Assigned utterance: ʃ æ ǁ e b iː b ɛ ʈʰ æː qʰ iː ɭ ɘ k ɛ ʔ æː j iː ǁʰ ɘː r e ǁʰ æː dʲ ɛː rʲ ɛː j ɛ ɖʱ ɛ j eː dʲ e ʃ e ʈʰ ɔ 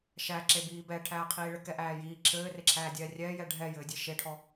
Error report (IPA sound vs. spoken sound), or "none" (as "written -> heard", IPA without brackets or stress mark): eː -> ɘː